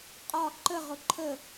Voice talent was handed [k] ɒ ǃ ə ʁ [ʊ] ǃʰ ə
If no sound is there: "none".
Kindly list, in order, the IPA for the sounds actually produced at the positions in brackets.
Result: qʼ, ʊ

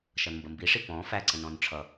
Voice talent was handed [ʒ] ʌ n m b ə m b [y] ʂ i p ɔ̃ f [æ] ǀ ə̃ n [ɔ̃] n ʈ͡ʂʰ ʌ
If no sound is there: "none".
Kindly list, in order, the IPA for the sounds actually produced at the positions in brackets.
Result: ʃ, i, æ, ɔ̃

